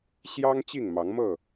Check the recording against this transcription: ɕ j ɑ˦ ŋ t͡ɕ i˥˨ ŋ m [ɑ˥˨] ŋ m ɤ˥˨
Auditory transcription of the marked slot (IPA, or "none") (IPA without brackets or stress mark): ɑ˨˦